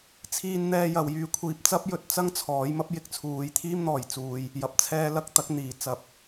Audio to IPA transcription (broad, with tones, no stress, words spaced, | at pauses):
t͡sʰiː˧nn̪ɛː˧jɐ˨wjyː˧ kʷʰiː˧p̚t͡sɐ˥p̚ jɵ˧t̚t͡sɐ˥ŋ t͡sʰɔː˨˥j mɐ˨˥p̚jɪ˨k̚t͡sʰuː˨j t̪ʰiː˥mn̪ɔː˨jt͡suː˧j | jɐ˨p̚t͡sʰɛː˧lɐ˧k̚ t̪ɐ˨˥k̚n̪iː˨ t͡sɐ˧p̚